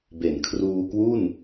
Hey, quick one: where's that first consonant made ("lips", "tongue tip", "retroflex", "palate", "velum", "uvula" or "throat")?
lips